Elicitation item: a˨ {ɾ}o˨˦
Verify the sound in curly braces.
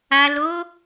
incorrect: l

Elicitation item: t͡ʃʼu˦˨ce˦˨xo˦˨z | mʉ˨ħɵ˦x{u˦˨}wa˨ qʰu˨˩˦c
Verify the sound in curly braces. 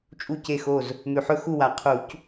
correct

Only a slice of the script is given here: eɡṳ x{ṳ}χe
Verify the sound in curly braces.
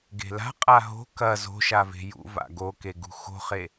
incorrect: o̤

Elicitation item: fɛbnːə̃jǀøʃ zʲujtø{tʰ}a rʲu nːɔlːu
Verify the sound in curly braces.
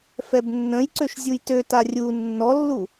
incorrect: t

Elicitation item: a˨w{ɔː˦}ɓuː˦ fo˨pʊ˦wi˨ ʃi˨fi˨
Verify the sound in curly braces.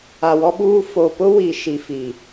incorrect: ɔ˦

